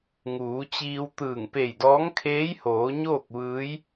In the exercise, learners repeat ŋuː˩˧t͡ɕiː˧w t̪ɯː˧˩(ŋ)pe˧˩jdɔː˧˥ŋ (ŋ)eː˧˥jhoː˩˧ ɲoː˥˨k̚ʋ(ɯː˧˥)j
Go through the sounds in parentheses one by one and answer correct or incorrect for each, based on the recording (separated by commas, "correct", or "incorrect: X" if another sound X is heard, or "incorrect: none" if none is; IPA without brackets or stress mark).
correct, incorrect: kʰ, correct